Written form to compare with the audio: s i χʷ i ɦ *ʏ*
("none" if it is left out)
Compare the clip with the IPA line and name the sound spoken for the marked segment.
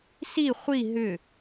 ʏ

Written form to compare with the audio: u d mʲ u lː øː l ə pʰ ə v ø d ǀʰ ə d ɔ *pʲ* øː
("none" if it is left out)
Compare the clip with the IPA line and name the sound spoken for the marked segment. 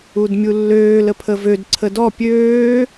pʲ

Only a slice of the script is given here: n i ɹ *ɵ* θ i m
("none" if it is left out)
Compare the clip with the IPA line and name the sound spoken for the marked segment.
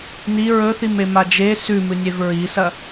ɵ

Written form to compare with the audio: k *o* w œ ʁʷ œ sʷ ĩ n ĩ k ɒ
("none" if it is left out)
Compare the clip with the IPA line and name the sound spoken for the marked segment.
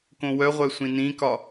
õ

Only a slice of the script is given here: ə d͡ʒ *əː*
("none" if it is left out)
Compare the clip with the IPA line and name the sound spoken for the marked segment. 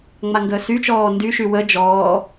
ɔː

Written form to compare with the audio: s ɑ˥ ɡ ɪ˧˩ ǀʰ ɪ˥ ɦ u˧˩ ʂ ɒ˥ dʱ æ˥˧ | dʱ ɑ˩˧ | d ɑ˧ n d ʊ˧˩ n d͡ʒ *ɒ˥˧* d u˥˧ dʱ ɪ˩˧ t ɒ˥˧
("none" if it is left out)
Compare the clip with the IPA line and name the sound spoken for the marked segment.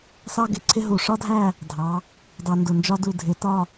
ɒ˥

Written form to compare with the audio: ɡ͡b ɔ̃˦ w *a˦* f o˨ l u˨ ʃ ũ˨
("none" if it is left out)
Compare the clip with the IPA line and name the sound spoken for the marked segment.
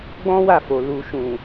a˦˨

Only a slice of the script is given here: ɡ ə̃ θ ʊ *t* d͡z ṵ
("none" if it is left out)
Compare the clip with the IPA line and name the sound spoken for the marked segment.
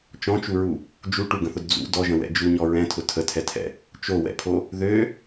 d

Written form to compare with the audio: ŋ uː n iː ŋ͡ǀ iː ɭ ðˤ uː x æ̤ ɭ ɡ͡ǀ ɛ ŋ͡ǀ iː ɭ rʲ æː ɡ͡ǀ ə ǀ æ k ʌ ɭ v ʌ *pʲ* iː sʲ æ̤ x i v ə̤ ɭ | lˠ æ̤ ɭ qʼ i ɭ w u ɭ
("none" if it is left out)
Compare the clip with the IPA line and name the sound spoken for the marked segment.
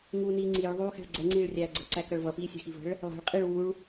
p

